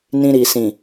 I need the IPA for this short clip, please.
nĩ˧ɾi˨sĩ˨

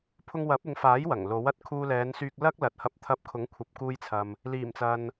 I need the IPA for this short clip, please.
pʰʊ˧ŋwɐ˨˥p̚ɪ˨˧ŋfaː˨˥j wɐ˨˩ŋlo˨˥w ɐ˨t̚kʰuː˧lɛː˨˧nsyː˧k̚ lɐ˥k̚ lɐ˨t̚hɐ˧p̚t̪ʰɐ˧p̚ kʰʊ˨˥ŋkʷʰɐ˨p̚kuː˧jt͡sʰɐ˨m | liː˨˩mt͡sɐ˨n

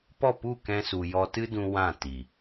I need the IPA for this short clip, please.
pɔ˦˨pu˦˨kɛ̃˧su˨ jɔ˧tɨ˦dũ˧ wã˦˨ti˨

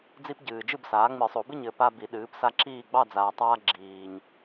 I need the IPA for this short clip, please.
d͡zi˦pɟɨː˨d͡ʒɨ˥˨bsaː˩˥ ŋ͡mɨ˨˩˦sˤo˨˩˦bɨ˥˨ɲ ɘ˩˥ pa˦bi˨˩˦ ɗɨː˩˥psa˦ǁiː˥˨ ɡ͡bɑ˥˨d͡zaː˨tˤaː˦ ɡ͡ǁiː˨ɲ

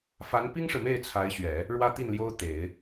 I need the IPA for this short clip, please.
fa˧˥npi˥ŋʂɻ̩˨me˥˩ɪ̯ t͡sʰa˧˥ɪ̯ɕɥɛ˨˩˦ | ɻwä˥t̪i˥˩nljo˥ʊ̯ t̪e˨˩˦ɪ̯

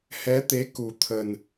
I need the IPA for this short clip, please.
hɛ˨˦t̪e˨˦ ku˨˩t̪ʰə˨˩n

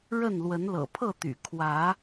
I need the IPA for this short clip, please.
ɻə˥˨n lwə˨˦nlɤ̰˨˩pʰɤ˥˨t̪y̰˨˩ kʰwä˨˦

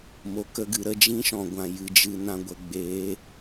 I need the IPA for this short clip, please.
mo˧kə˦ɡɨ˧ ɾə˧d͡ʒĩ˦ʃɔ̃˨ɡʷã˨ jɨ˧d͡ʒɨ˧nã˧ɡʷə˧ ɡ͡beː˨˦

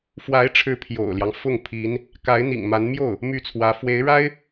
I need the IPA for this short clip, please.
fwa˧˥ɪ̯ʈ͡ʂʰɻ̩˧˥ pʰjo̰˨˩ʊ̯ljɑ˦ŋ fʊ˥˩ŋpʰi˧˥n | ka˧˥ɪ̯n̪ḭ˨˩ŋma˧˥n mjo˥˩ʊ̯ | my˥˩t͡sʰwä˧˥ fwe˧˥ɪ̯ɻa˥ɪ̯

